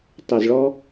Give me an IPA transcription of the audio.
tˤ ʊ˨˩ z ɭ ɔ˧

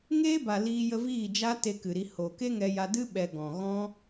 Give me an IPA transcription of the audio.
ŋ eː˦ b a˨ l iː˧ j ə˧ v iː˦˨ d͡ʒ a˦ t e˧ k ɨ˨ ɾ i˧ h o˨ k e˦ ŋ ɛ˧ j a˧ d ɨ˦ ɓ ɛ˧ ɡ ɔ̃˨ ɣ ɔ̃˦

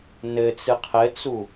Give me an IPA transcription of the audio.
n ɘ t͡s ɨ qʰ ɘ t͡s u

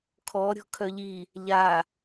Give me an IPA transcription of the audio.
kʰ ɔ ɾʲ ɔ̤ kʰ œ ʎ i | ʎ a

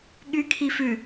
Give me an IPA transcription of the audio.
ɠ y kʰ i f ʉ

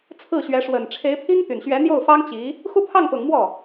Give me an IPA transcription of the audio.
t͡sʰ ɹ̩˥˩ ɕ ɥ ɛ˧˥ ʂ w ə˨˩ n ʈ͡ʂʰ e˧˥ ɪ̯ pʰ i˥ ŋ t̪ y˨˩ n ɕ ɥ ɛ˧˥ n̪ j o˥˩ ʊ̯ f ɑ˥ ŋ t͡ɕ i˧˥ | x u˥˧ pʰ ɑ˥˩ ŋ p ʊ˨˩ ŋ m w ɔ˥˩

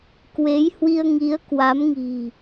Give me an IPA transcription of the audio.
k w e˨˦ j h w i˧ ə̯ ŋ i˨˦ ə̯ k w a˨˦ m ŋ i̤˨˩

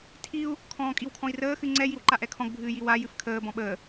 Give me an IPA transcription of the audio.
tʰ i u̯ | kʰ ɔ̃ː kʼ i w kʰ ɔ̃ i̯ r əː x ɨ ŋ͡ǀ ɛ j i w ǃ a ʔ ɛ kʰ ɔ̃ ɡ bʱ ɨː j i w a j ɨ f kʰ əː b ɔ̃ ɓ əː

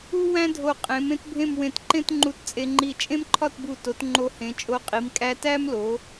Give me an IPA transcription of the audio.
u˥ w æ̃˥ dʱ o˧˩ qʼ ẽ˩˧ m ẽ˥ t bʱ ẽ˥˧ m w ẽ˧˩ t ǃ ẽ˥ t ŋ͡ǃ u˧ t t͡sʼ e˧ ŋ͡ǃ i˧˩ t͡ʃʼ ẽ˥ m ǃʰ ɒ˥˧ t b u˧˩ t o˩˧ t ŋ͡ǃ o˧ h ẽ˩˧ t͡ʃʼ o˧ qʼ i˩˧ m kʼ æ˧ t æ˥ m l o˩˧

